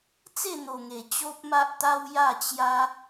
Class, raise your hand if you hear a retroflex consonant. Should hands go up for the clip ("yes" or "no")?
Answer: no